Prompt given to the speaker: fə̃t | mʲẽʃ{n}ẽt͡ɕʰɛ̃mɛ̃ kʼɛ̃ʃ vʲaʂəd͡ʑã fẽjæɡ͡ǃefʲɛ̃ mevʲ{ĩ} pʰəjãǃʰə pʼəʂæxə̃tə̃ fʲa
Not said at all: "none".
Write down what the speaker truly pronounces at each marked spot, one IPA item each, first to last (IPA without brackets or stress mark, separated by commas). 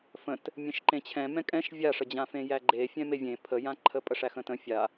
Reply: ǃ, ẽ